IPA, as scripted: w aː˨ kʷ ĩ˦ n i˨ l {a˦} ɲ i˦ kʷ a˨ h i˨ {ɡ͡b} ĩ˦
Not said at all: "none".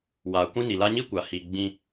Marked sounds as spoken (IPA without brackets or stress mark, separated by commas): a˦, ɡ͡b